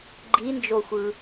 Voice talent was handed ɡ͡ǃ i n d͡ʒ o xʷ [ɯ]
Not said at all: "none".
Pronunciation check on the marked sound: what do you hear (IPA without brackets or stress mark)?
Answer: ɯ